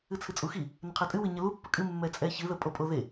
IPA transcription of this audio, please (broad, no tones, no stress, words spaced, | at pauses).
ɨt͡sʰɨt͡sʼuxi | nəqʰɛtʼɨ wɨɲəlu pːəkʼɨ mːɛt͡sʼɛçɨ ðəpʼopʼoðe